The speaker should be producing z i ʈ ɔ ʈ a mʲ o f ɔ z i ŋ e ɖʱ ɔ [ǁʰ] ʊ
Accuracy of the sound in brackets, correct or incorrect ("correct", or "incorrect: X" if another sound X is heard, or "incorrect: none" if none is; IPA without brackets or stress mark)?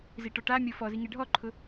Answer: incorrect: ǃʰ